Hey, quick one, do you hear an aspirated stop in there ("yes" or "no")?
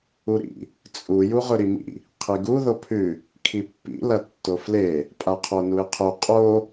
yes